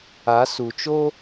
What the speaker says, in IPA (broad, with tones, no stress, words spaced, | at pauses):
a˨˦su˨t͡ʃo˦